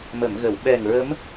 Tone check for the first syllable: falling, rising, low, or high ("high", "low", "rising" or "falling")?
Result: low